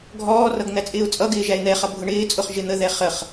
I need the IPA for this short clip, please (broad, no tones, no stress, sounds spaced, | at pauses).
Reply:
ɡʱ ɔː r ʌ ɡ n̪ æ t͡sʼ ɪː ʊ̯ t͡sʼ ʌ ɡ ɪː ʒ æ ɪ̯ n̪ ɛ χ ʌ bʱ ʊ ɳ ɪː t͡sʼ ʊ χ ʒ ɪ n̪ ə ð ɛ χ ə χ